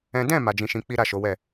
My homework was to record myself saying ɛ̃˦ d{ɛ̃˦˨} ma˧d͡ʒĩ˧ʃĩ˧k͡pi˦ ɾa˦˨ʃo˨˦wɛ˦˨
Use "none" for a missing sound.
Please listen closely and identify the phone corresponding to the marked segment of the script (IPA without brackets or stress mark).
ɛ̃˦˨